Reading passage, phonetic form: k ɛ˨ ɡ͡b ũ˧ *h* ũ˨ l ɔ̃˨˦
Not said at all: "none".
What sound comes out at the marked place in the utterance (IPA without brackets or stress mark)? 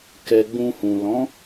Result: h